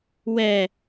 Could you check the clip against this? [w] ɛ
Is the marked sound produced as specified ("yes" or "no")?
yes